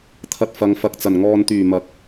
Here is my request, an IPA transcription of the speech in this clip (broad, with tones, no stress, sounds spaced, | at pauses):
t̪ʰ ɐ˧ t̚ f ɐ˨˧ ŋ f ɐ˨ k̚ t͡s ɐ˨˩ n ŋ ɔː˨ n t̪ yː˨˩ m ɐ˨˥ k̚